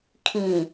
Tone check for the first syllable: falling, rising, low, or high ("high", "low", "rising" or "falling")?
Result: low